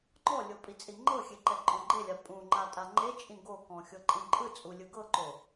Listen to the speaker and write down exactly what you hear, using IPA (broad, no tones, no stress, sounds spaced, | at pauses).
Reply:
ŋ͡ǃ ɔ lʲ o pʼ i t͡sʼ i ŋ͡ǃ ɤ xʲ e ǃ ɛ ǃʼ ɔ̃ ɡ͡ǃ e lʲ a pʼ ũ ŋ͡ǃ a tʼ a ŋ͡ǃ e t͡ʃʼ ĩ ɡ o k ɔ̃ xʲ ɤ ǃʼ ĩ ǃʼ ɯ t͡sʼ u lʲ ɯ ɡ ɤ ǃ o